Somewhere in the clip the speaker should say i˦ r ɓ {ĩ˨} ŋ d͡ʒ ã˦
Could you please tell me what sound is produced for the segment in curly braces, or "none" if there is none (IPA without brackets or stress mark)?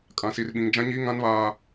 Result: ĩ˦